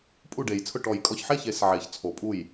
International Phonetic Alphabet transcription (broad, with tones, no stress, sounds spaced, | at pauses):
pʼ u˥˩ ɖ e˨˩˦ j t͡sʰ ʊ˥˩ ʈ ɔ˨˩˦ j kʼ ɔ˨ ç ħ e˥˩ ç e˨˩˦ s ʕ e˨˩˦ ç t͡sʰ o˨˩˦ pʼ u˥˩ j